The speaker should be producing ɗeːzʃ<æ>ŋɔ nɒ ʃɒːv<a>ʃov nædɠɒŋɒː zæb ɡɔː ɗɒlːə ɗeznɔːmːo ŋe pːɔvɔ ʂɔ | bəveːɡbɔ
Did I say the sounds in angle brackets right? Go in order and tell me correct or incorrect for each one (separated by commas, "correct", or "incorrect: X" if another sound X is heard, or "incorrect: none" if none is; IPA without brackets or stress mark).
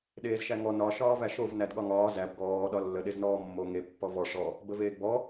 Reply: correct, incorrect: æ